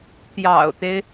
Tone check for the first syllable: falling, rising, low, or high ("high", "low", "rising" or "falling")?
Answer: low